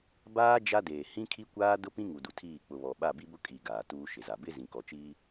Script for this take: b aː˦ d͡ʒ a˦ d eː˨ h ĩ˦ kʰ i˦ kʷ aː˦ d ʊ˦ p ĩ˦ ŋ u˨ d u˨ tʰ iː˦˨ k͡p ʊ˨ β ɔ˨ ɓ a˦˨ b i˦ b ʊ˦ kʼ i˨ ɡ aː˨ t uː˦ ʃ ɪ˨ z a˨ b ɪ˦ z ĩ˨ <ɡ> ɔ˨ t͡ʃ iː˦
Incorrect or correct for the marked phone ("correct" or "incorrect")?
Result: incorrect